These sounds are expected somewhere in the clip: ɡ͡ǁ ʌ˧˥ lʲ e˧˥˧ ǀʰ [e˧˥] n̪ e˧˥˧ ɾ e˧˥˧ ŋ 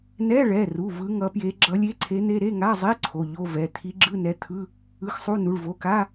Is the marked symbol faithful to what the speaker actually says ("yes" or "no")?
yes